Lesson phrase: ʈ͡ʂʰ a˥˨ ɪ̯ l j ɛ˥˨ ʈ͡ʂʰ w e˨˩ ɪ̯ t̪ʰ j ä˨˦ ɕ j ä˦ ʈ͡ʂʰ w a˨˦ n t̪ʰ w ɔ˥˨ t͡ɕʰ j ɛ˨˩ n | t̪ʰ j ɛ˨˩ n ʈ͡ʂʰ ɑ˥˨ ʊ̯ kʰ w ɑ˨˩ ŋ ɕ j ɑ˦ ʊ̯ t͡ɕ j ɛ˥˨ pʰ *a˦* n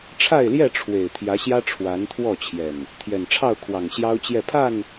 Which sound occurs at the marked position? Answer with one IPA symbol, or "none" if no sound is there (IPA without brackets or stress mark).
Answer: a˥˨